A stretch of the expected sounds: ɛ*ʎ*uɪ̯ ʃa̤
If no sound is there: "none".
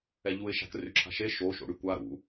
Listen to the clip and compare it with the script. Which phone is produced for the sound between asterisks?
ʎ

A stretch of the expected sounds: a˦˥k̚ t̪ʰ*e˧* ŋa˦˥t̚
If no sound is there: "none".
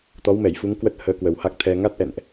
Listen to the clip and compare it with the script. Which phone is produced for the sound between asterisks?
ɛ˧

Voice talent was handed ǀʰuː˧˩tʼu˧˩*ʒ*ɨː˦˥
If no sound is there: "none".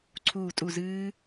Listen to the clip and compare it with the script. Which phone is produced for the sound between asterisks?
z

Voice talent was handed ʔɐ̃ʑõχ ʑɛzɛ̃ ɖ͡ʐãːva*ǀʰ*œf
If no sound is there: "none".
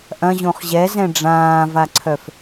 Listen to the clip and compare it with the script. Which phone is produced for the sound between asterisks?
ǀʰ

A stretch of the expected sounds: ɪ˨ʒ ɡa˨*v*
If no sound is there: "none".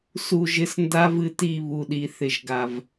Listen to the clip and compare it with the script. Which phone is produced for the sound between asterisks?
v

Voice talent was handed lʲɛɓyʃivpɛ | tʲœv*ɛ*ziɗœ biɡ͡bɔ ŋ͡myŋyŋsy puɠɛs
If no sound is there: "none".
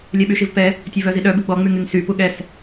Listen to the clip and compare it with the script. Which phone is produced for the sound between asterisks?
œ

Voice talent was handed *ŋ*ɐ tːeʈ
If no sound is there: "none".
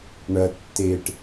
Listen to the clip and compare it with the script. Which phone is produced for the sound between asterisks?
ɳ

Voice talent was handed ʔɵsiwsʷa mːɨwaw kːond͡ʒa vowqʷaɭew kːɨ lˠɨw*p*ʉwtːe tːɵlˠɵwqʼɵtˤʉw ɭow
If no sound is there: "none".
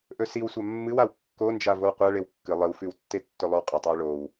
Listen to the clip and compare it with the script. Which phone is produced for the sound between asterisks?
f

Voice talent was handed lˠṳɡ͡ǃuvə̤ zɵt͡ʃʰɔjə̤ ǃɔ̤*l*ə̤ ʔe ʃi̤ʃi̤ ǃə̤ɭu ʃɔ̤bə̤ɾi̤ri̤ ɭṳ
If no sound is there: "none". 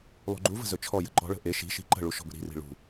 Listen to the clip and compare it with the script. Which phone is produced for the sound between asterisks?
ɭ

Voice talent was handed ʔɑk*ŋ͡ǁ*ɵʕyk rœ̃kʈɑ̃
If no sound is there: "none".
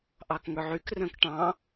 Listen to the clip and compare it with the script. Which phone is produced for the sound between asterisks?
ŋ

